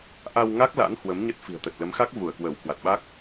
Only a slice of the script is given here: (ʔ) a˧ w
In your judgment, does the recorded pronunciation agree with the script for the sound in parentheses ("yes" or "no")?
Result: yes